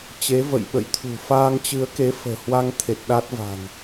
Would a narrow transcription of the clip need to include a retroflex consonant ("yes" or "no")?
no